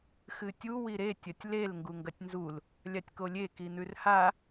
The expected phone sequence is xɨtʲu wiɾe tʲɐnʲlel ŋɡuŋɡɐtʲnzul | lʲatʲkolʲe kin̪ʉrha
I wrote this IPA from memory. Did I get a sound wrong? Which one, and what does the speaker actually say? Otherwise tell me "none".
nʲ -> tʲ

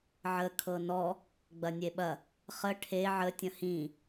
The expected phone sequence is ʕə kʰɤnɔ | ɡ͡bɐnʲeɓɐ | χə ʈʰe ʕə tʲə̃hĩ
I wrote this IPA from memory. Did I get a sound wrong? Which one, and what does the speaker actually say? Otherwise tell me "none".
none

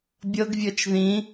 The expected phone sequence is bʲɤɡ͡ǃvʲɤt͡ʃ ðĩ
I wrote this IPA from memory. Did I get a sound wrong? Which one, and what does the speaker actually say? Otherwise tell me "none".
ɡ͡ǃ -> ɡ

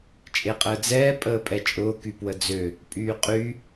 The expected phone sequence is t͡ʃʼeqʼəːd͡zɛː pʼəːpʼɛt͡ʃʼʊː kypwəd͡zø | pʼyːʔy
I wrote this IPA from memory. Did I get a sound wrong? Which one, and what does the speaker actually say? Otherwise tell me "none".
ʔ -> qʼ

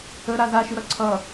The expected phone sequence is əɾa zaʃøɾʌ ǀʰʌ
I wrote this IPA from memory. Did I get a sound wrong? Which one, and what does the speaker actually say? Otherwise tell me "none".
ø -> ʉ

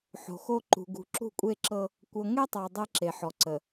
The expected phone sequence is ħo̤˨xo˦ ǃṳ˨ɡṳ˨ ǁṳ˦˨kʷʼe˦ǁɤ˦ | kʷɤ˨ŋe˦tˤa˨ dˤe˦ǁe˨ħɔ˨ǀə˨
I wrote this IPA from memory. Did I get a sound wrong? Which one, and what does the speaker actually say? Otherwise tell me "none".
none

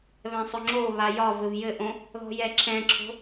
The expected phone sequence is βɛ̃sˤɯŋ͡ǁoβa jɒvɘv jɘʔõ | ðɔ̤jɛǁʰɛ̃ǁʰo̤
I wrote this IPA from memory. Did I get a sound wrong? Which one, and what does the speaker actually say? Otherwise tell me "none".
ɯ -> ʊ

